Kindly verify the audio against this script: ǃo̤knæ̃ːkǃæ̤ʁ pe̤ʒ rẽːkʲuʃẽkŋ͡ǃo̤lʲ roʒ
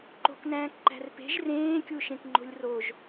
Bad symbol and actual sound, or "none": ʁ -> r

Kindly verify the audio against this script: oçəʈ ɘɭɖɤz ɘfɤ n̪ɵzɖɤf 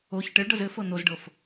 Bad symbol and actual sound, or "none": ɵ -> o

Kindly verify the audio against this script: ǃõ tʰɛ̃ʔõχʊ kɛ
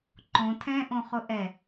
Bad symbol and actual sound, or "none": k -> ʔ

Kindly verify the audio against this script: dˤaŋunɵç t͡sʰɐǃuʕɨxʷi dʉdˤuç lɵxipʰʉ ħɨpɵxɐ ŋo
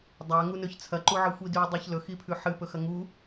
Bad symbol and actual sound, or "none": o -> u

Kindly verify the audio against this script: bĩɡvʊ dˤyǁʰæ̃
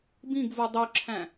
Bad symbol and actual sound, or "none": ʊ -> u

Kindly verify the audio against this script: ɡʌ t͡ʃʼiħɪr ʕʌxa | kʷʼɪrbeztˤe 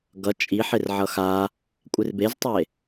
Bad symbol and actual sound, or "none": none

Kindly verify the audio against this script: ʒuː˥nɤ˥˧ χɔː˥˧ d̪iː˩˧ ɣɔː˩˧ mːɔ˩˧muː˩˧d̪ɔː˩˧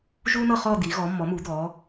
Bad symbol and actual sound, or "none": none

